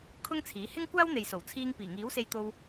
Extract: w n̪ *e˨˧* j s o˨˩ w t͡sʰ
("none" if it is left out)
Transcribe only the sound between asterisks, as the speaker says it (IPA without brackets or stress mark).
e˨